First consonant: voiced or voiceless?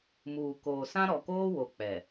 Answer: voiced